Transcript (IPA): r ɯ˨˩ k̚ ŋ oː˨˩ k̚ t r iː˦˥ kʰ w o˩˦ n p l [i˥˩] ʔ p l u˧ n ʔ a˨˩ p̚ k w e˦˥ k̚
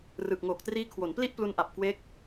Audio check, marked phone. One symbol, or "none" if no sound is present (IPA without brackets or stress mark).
i˥˩